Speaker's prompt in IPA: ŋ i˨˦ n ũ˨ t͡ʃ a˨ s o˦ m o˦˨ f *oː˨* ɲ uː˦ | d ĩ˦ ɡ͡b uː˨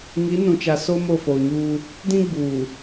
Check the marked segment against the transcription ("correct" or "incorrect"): correct